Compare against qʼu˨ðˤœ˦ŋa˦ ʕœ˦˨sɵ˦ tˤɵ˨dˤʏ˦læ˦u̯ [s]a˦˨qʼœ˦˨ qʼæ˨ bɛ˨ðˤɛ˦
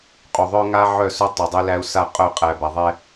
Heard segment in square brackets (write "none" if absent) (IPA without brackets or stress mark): s